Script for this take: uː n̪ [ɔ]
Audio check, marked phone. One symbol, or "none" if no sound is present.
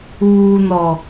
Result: ɔ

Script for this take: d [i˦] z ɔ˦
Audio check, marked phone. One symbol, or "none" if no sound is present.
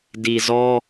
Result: i˨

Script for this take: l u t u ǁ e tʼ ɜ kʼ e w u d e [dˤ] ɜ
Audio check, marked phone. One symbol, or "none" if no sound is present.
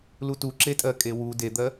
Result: d̪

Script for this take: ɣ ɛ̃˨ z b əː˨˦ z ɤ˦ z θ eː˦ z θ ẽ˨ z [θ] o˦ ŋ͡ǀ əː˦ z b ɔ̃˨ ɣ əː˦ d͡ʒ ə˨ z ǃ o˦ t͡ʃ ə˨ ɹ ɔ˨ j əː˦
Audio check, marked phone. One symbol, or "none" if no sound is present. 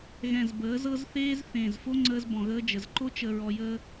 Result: f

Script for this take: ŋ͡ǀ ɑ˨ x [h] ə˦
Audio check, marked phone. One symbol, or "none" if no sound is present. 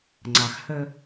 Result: h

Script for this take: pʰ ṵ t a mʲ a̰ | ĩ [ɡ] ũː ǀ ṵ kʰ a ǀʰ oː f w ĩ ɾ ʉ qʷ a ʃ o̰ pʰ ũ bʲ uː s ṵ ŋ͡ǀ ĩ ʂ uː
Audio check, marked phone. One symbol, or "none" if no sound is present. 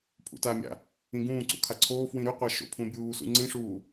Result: ɡ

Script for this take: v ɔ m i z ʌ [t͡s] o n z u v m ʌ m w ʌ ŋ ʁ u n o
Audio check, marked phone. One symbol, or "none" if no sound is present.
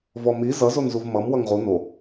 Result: z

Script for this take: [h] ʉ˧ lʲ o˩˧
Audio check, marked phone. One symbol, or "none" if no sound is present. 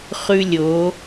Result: χ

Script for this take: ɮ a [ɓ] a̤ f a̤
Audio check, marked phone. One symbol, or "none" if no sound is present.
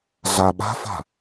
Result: ɓ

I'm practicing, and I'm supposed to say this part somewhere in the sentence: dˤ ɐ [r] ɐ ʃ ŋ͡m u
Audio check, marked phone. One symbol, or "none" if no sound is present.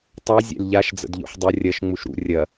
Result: rʲ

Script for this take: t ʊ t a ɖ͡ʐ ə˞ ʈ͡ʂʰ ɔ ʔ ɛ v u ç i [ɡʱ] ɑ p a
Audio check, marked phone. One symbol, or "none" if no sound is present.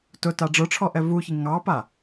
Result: ŋ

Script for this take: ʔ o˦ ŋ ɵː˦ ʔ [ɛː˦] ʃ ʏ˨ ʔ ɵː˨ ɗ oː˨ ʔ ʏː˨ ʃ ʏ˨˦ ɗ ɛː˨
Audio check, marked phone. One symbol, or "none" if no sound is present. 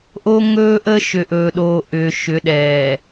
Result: əː˦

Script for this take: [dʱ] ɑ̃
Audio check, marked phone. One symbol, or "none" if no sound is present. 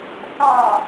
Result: θ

